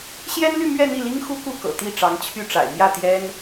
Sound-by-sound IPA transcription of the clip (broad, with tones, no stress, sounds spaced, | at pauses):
ɕ j ɛ˥ n l y˥˧ m ɥ ɛ˥˧ n̪ i˥˩ l i˥ ŋ x u˥ k u˥˩ k ɤ̰˨˩ t̪ i˥˩ ʈ͡ʂ ɑ˧˥ ŋ t͡ɕʰ y˥˩ ʈ͡ʂ a̰˨˩ ɪ̯ m j ä˥˩ t̪ j ɛ˥ n